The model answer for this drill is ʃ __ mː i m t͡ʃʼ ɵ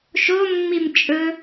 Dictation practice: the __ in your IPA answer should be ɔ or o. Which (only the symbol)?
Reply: o